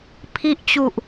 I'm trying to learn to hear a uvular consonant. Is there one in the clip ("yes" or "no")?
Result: no